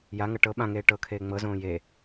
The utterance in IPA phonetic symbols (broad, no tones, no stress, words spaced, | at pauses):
jaŋɤ ʈɤ ɓãŋeː ʈɤkʰeː ŋ͡mɤzõː je